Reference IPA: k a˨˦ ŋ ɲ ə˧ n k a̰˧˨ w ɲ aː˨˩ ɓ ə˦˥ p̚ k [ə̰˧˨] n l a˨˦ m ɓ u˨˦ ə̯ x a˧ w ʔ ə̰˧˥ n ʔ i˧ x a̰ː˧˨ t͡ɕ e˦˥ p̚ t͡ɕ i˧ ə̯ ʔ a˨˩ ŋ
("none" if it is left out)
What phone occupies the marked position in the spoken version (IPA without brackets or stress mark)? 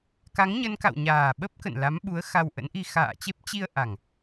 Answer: ə̰˧˨